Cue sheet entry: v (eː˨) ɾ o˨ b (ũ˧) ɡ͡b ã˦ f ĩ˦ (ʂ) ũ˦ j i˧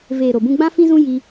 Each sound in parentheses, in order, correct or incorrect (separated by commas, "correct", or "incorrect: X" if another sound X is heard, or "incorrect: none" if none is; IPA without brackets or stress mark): correct, correct, incorrect: z